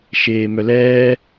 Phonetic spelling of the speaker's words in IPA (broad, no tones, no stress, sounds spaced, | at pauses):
ʃ eː m œ l ɛː